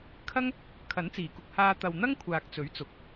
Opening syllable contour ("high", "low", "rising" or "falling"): high